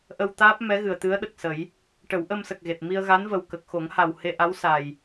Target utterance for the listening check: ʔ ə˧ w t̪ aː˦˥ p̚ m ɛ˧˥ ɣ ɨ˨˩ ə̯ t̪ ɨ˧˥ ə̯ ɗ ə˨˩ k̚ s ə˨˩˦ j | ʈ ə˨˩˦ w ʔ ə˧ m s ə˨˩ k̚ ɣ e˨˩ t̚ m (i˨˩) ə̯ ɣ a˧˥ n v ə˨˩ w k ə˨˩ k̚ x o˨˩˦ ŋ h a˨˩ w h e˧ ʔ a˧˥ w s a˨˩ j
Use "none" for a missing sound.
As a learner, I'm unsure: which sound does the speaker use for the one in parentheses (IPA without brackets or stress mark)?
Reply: i˧